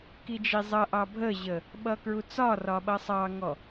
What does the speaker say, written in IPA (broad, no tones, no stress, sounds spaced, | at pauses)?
k i d͡ʒ i zˤ ʌ ʔ ɑ bʱ ə ʑ ə | ɓ ʌ k ɹ u t͡s ɒ r ɒ ɓ ʌ sˤ ɑ ŋ ɔ